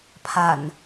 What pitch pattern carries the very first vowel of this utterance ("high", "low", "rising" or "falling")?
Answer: low